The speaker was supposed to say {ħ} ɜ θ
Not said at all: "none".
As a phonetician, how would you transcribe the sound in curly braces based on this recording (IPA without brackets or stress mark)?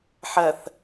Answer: ħ